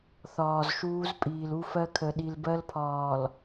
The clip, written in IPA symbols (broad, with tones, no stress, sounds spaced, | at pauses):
θ ɒː˨ z ʃ uː˦ z pʼ iː˨ l u˦ f ɜ˦ kʰ ə˨ ɗ i˨ l b ɜ˦ l pʰ ɒː˨ l